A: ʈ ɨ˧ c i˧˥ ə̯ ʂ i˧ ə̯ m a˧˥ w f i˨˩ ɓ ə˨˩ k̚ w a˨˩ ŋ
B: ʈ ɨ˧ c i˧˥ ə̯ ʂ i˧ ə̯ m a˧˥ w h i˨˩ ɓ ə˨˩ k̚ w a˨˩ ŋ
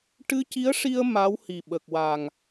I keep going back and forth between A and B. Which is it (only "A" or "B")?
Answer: B